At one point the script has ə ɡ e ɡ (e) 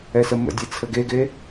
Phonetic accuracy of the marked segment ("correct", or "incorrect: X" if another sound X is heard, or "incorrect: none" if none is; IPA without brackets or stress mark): correct